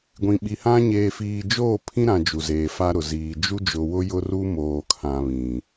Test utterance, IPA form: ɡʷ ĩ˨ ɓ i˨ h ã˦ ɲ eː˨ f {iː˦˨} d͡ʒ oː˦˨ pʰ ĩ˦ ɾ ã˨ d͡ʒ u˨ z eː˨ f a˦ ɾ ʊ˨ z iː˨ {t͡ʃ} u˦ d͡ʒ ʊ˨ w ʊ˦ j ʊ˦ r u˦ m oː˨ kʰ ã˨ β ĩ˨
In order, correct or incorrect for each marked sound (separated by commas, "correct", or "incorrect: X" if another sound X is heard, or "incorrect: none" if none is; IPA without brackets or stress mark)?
incorrect: iː˨, incorrect: d͡ʒ